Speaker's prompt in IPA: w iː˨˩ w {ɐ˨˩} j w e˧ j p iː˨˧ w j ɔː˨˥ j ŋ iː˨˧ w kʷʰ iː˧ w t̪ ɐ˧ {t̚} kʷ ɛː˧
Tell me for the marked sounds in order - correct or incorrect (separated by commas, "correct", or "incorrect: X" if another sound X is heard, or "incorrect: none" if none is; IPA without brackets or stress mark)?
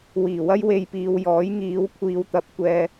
incorrect: ɐ˥, incorrect: p̚